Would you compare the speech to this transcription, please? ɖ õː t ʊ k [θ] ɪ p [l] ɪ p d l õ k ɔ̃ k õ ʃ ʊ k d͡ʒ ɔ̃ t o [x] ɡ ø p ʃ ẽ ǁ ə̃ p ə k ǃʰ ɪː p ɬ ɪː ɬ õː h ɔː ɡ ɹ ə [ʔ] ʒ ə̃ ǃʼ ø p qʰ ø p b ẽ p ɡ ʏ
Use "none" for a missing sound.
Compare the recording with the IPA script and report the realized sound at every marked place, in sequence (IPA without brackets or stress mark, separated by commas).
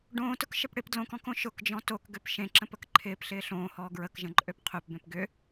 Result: ʃ, ɽ, k, k